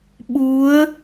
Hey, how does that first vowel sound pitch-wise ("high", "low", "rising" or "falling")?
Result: rising